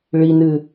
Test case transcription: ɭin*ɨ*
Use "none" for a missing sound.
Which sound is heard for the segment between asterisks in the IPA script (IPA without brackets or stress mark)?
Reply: ɨ